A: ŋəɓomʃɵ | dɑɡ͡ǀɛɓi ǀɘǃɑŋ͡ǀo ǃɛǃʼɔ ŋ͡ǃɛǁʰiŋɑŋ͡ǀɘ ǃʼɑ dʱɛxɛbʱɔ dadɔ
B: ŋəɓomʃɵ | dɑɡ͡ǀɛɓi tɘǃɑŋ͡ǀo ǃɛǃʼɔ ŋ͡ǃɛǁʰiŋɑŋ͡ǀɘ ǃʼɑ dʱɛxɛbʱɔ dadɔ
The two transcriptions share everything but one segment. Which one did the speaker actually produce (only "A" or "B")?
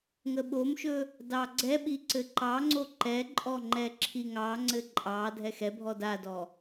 A